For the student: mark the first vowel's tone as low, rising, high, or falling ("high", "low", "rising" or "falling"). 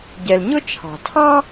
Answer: low